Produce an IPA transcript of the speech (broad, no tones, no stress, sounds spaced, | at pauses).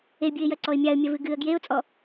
e bʲ ɨ ɪ̯ j ɐ ǀ ɔ ɪ̯ mʲ a ə̯ mʲ ɐ v ɨ ɡ ɨ ə̯ ɡ j e ʊ̯ t͡sʼ ɔ